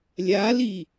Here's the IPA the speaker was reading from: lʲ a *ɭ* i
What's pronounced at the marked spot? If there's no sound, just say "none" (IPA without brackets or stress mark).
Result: l